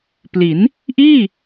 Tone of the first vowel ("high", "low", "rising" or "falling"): rising